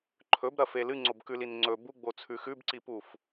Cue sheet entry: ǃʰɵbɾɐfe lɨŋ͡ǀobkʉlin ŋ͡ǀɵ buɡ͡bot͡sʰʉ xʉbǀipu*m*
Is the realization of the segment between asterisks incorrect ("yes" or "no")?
yes